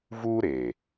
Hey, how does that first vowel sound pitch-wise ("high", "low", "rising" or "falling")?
high